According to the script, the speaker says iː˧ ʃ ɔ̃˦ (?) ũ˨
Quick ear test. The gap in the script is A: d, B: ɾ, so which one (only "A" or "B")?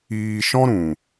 B